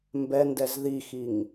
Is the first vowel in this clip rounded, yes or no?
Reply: no